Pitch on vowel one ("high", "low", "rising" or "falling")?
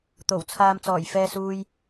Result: low